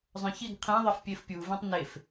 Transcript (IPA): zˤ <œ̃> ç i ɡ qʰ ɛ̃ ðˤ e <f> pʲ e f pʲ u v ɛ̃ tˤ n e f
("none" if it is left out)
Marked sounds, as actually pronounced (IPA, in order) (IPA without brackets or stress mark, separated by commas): œ̃, f